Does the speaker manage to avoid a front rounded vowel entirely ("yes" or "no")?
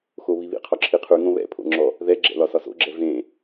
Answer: yes